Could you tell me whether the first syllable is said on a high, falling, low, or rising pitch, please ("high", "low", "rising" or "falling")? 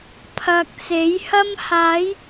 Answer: low